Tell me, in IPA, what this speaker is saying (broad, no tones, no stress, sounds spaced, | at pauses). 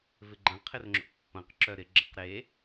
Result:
v ɪ ɡ͡ǃ ɐ̃ qʰ ɪ r ŋ͡ǁ o̰ pː ɐ̃ q ǁ œ ɾ ɪ ɡ͡ǁ ɐ q ɾ e